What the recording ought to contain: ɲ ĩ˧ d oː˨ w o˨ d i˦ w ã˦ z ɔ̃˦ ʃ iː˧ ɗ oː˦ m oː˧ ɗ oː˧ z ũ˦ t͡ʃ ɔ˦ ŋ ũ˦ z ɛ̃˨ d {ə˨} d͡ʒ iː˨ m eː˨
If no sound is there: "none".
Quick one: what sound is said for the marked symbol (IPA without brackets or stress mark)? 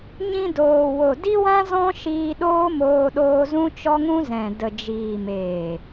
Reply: ə˨